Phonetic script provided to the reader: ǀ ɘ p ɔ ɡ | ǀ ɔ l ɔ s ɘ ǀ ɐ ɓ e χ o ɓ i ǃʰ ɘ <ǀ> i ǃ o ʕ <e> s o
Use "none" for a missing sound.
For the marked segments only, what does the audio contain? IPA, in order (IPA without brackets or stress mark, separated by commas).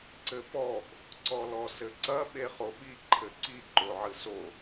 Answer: ǀ, ɨ